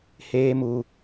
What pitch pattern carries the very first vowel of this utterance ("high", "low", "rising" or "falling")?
high